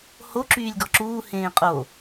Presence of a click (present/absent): present